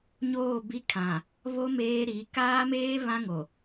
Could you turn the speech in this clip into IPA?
ɲ oː˦˨ b i˦ kʰ ã˨ | β o˦ m eː˦ ɾ i˨˦ k aː˦ m eː˦ β ã˦ ŋ o˨

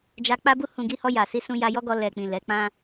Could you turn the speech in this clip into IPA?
d͡ʒ a˧ k͡p a˦ b u˦ h ũ˧ ɡ i˧ h ɔ˧ j a˨ s i˧ s ũ˧ j a˧ j ɔ˦ ɡ ɔ˧ l ɛ˨ k͡p ĩ˨ l ɛ˨˦ k͡p ã˦

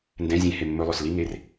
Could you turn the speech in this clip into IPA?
n d ɛ̃ zʲ ẽ h e mː ɵ lˠ ɵ s l i ŋ e r

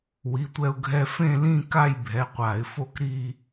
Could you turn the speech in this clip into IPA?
w i˩˧˩ tʷ ɛ˧ ʊ̯ ɡʱ ɛ˧ f ẽ˥˧ l ĩ˥˧ k a˥˧ j bʱ ɛ˩˧˩ qʷ a˧˩˧ ɪ̯ f o˥˧ k ɾ i˥˧

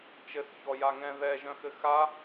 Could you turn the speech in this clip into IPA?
t͡ʃ ɘ s ç ɔ j a ŋ ɛ̃ ð ɛ ʒ œ̃ x ɘ x a

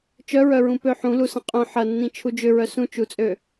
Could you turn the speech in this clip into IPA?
t͡ʃ œ ɹ œ ɹ ũ p ø ħ ũ l u s ɐ̃ qʼ œ̃ ħ ɐ nː ĩ t͡ʃʰ u d͡ʒ ʏ ɹ œ s ũ t͡ʃ u t͡sʼ ø

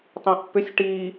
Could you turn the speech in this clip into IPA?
tˤ ĩ ʔ pː ʏ sʲ ʈ i

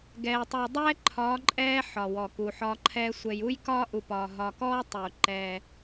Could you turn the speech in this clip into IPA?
ɡ ɛː˨ tˤ uː˨ dˤ ɛː˦ ǃʰ ɒː˨˦ ǃʼ ɛː˦ ħ ɒ˨ w ɔ˨ k uː˨ ħ ɒː˦ ǃʰ ɛː˦ sʷ ɛ˨ j u˦ j k ɒː˦ ʔ u˨ p ɒː˨ ɦ ɒː˨ k ɔː˦ tˤ u˨ ǃ ɛː˦

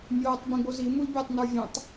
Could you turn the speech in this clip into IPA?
mʲ oː tˤ b ĩ ɡ͡b o z i m u l bʲ o tˤ n ə˞ vʲ ə̃ tˤ

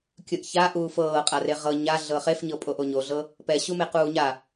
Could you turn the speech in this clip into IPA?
kʲ ɯ ʔ ç a ʔ uː f ɤː qʼ a r e ʁ ɤ ɲ a ɮ ɤ χ e f ɲ ɤ pʼ o ʔ o ɲ o ɮ ɤ | p ɛ ɕ u m e q uː ɲ a

